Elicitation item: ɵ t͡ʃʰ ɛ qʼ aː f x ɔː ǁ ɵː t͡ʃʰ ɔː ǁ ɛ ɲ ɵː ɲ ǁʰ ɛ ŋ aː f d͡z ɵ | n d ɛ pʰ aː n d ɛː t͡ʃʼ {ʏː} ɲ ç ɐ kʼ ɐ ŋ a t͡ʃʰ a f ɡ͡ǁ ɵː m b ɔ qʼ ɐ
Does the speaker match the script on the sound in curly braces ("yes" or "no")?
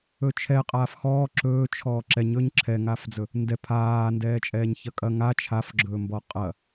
no